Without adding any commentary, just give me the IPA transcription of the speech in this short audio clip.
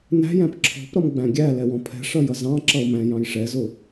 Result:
n æ̤ j æ̃ p ǁʰ ɔ̤ p ɾ ʌ m ɡ͡b æ̃ ɡʲ æ l ɛ w ɔ̃ pʰ ɛ̤ ʂ ʌ j ʌ z ɑ̃ ǁ ʌ ʊ̯ m æ̃ j ɑ̃ j ʂ ɛ z ʊ

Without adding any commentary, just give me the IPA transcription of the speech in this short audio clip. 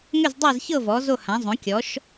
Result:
ŋ ʏ˥˨ z dˤ a˥˨ z ç ɤ˥˨ v ɔ˩˥ z o˥˨ h ã˩˥ zˤ õ˩˥ kʲ ɔ˩˥ ʃ

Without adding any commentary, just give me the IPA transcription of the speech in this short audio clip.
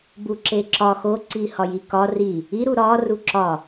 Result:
b u ǁ e ǁ ɒ x o ǀ i h ɒ j i k ɒ r i | i ɾ u ɾ ɒ r u ǁ ɒ

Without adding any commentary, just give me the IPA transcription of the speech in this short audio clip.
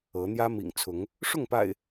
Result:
ɤ˨˦ n̪ j ä˦ m ḭ˨˩ ŋ t͡sʰ ʊ˨˦ ŋ | ʂ ʊ˥˨ ŋ p a̰˨˩ ɪ̯

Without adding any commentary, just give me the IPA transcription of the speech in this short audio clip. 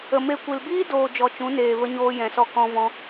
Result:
ə˨ m e˧ kʷ i˨ l b iː˦ d oː˨ d͡ʒ ɔ˨ t͡ʃ ũ˨˦ n eː˨ v ə˧ ɲ oː˧ j ɛ̃˨ s ɔ˧ k ɔ̃˧ v ɔ̃˧

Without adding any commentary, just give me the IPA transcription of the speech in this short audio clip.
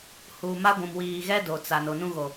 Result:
h uː˨ m a˦ ɡʷ ũ˨ m w iː˨ ɣ ɛ˦ d o˨ t͡s a˨ n o˨ n ũ˦ ɣ o˨

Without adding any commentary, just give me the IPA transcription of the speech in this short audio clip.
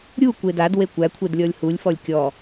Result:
ɾʲ u kʷ e d a d w e kʷ æ kʷʰ e d lʲ ɔ lʲ h u lʲ f ɔ lʲ kʲ ɔ

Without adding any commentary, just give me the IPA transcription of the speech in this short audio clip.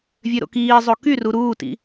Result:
vʲ ø ɾ o̰ k iː zˤ o k y r u ɾ uː t ḭ

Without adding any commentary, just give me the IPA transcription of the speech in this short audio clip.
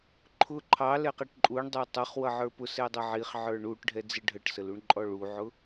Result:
ǃʰ ʊ ǃʰ ɑ l ɛ q ɛ ʈ ǃʼ u ɳ dˤ ə˞ tˤ ʌ χ w ʌ ʕ ə˞ p ʊ s ɛ dˤ ʌ ʕ i χ ʕ ə˞ ɳ u ʈ ɖʱ ɛ d͡z ɪ ɖʱ ə ʈ s ə l u ɳ ǃʼ ɔ ɭ u ʕ ʊ

